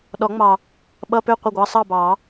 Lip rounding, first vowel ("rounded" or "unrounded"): rounded